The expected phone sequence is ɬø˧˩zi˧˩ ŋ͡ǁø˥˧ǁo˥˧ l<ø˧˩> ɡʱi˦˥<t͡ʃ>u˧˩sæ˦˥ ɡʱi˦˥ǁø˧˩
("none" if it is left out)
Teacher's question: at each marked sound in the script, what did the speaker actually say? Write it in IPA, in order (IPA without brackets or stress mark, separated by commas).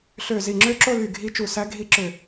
y˧˩, t͡ʃ